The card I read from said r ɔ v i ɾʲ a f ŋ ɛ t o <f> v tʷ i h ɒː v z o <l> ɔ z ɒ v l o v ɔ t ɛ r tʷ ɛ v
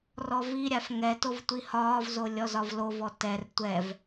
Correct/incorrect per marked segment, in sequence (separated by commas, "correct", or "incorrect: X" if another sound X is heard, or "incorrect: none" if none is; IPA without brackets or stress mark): incorrect: none, incorrect: lʲ